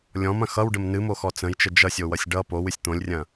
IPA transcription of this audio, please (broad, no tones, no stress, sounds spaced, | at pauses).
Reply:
lʲ ɔ̃ m ɐ̃ x ʌ w ɖ ə m n ɨ m o x ɔ t͡s ə̃ j t͡ʃ ə d͡ʒ ʌ sʲ o w ʌ sʲ ɖ ʌ p o w ɨ sʲ t̪ õ lʲ rʲ ɐ̃